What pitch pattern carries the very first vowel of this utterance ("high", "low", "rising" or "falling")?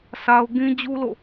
high